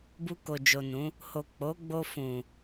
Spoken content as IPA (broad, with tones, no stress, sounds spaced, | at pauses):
b u˧ k o˨ d͡ʒ o˨ n ũ˨˦ | h o˨ k͡p o˨˦ ɡ͡b o˧ f ũ˨